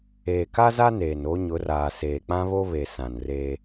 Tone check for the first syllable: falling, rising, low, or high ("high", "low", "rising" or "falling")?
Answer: low